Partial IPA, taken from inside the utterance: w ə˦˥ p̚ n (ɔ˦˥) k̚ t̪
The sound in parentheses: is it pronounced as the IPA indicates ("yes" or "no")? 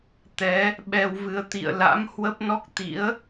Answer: yes